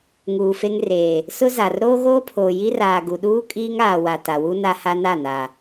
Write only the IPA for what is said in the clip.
ŋ uː˨ f e˦ ŋ r eː˨ | s ʊ˦ z a˨ r ɾ oː˦ ɣ oː˦ pʰ oː˨ j i˦ r aː˨ ɡ u˨ ɗ uː˦ kʼ iː˦ ŋ aː˨ w a˨ t a˨ w u˦ n a˦ h a˦ n a˦˨ n a˨

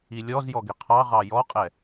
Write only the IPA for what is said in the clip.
i lʲ ɔ z j ɔ ɡ ɪ qʰ ɑ ʁ ɑ j ɔ qʼ ɛ

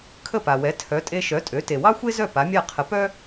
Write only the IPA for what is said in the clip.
kʰ ə˥˩ p a˩ w ɛ˩˥ tʰ œ˩˥ tʼ e˧ ʃ œ˩˥ tʼ ø˩˥ t e˩ w ɑ˥ xʷ e˥ z œ˥˩ p a˩˥ mʲ a˥˩ qʰ ə˩˥ p œ˥

